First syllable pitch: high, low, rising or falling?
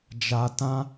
low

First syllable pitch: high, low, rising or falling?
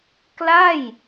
falling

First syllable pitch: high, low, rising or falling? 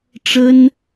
high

